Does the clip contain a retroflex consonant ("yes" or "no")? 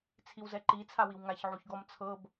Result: no